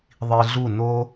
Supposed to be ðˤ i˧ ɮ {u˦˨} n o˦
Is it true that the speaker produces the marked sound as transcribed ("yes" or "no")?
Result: yes